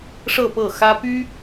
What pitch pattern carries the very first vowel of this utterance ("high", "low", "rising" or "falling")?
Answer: falling